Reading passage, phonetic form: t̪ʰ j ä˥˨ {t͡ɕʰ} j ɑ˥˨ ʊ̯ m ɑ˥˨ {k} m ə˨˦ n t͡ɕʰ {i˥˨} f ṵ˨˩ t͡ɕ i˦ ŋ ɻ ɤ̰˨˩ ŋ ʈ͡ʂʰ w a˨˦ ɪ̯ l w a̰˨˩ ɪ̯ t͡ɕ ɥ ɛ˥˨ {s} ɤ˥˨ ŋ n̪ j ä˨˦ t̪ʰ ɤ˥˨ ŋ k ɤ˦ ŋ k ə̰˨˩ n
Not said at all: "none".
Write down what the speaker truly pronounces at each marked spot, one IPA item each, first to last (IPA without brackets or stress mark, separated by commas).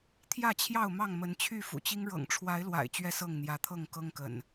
t͡ɕʰ, ŋ, y˥˨, s